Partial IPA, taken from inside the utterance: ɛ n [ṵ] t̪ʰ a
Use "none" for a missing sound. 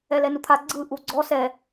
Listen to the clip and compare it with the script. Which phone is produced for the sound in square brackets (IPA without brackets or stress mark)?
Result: u